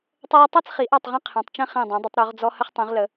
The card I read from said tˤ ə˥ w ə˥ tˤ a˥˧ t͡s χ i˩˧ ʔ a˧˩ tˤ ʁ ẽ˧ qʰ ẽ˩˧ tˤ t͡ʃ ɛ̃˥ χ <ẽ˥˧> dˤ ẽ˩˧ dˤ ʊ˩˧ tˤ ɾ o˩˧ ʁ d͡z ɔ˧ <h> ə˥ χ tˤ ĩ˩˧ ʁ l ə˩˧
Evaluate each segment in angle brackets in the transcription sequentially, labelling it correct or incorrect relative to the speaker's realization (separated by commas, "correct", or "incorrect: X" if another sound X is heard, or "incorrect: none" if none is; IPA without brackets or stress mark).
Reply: incorrect: ẽ˧˩, correct